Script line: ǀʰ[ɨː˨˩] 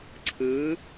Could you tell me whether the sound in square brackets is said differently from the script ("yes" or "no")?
yes